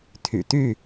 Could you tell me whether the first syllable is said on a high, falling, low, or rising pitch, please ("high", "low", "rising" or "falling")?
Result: low